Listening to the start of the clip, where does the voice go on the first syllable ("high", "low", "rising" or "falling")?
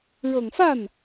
low